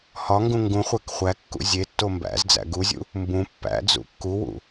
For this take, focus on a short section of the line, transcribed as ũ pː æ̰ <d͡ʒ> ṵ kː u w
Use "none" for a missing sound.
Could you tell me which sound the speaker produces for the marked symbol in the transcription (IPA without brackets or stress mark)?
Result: d͡z